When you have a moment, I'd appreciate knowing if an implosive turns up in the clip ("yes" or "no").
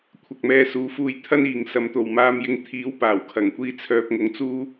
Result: no